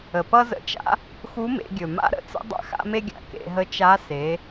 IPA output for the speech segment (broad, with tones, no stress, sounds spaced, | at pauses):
ə˩ p ʌ˥ z ə̰˧˥ t͡ʃ a̰˥ | x u˧˥ m ḛ˩˧ ɡʲ ɵ˩ m a̰˥ ɾ ə̰˧˥ t͡s ə̰˥ dˤ a̰˥ x a̰˥ m e˥ ɡʲ a̰˩˧ k ḛ˩˧ ɦ ə˧˥ t͡ʃ a˧˥ s e˩˧